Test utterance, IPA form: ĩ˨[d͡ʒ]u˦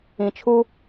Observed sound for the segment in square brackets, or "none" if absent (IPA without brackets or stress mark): t͡ʃʰ